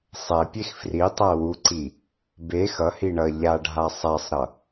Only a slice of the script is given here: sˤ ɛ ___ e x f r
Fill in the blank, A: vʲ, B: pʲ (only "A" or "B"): B